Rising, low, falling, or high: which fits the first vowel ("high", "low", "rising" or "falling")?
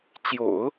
low